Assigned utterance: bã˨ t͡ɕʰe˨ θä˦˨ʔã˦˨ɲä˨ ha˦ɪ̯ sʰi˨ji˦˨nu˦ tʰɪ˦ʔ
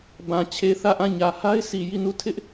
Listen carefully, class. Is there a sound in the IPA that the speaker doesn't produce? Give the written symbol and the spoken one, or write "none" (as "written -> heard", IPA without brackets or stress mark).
u˦ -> u˦˨